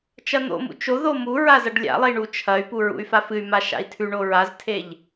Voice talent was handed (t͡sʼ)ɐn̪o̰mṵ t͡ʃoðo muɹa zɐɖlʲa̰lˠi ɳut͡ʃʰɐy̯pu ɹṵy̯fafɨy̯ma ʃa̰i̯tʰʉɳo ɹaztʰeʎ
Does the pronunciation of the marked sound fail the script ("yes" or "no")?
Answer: yes